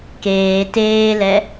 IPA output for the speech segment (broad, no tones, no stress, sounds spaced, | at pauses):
k eː t eː l ɛ